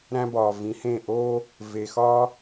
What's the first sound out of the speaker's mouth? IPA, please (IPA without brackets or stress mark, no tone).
ɾ